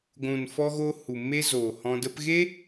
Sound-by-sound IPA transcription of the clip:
ɡʷ ũ˨ n f ɔ˧ ɣ o˧ h u˨ m e˦ z oː˨ h ɔ̃˧ d ə˦ p ɣ e˦

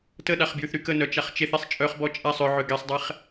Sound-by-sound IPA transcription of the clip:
t ə ɗ a χ b j y θ ɾ y k ə n œ t͡ʃ a χ t͡ʃ e θ e sˤ t͡ʃʼ œ χ b ɔ t͡ʃʼ a sˤ ʏ ʕ ʏ ɡ ɛ sˤ dˤ ɛ χ

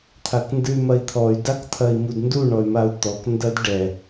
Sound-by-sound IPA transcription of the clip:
t̪ʰ a k n d ɨ y̯ m ɐ i̯ t̪ʰ ɔ y̯ d a k t̪ʰ ɐ i̯ m u d n d u ɳ ɔ y̯ m a u̯ t̪ ɔ k n d ɐ d ɖ ɛ

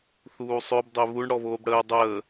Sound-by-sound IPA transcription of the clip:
θ uː sˤ ø b dˤ e β u ɳ ɽ ɔ β oː b ɽ əː dˤ əː

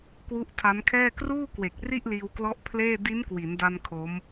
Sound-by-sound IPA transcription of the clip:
k w u˦˥ ʔ tʰ a˦˥ n kʰ ɛː˥˩ k r uː˥˩ k w e˨˩ k̚ r i˥˩ ʔ l iː˧ w k l ɔ˦˥ ʔ pʰ l eː˥˩ d i˦˥ n k w i˩˦ n d a˧ n kʰ o˦˥ m

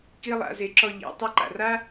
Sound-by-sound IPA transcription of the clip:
k i˥ lˠ a̰˩˧ z e˩˧ ǁ ɔ˧ ʎ ḛ˩˧ tˤ ɘ˧˥ ǃ a̰˩ r a˥

